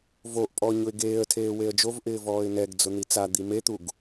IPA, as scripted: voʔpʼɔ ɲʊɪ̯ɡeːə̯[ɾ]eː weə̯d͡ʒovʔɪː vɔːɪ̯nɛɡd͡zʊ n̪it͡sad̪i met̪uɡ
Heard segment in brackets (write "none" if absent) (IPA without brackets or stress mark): tʰ